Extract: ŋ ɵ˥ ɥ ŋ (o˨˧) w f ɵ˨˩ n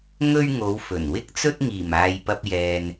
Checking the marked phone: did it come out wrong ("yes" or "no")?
no